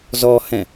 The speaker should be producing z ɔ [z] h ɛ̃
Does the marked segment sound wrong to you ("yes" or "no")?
yes